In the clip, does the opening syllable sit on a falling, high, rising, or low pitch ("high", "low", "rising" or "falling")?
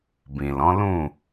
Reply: low